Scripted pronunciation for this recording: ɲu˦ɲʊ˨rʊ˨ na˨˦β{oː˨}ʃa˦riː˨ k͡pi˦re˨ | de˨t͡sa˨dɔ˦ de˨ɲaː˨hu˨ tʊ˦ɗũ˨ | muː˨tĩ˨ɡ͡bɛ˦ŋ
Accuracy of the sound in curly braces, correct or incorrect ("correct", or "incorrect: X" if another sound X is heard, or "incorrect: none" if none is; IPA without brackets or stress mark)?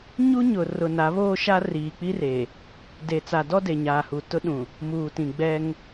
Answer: incorrect: oː˦